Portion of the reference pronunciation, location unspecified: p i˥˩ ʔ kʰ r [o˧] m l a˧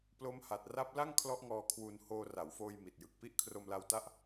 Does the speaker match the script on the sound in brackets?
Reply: yes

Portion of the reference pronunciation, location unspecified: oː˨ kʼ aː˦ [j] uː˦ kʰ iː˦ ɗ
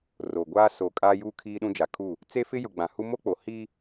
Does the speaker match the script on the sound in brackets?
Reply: yes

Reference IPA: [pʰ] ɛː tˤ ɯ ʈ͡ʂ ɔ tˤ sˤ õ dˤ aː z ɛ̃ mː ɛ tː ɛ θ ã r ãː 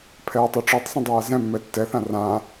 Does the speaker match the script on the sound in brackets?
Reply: yes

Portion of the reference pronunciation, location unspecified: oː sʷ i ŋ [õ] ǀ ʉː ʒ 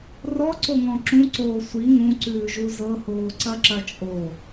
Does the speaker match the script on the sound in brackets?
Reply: no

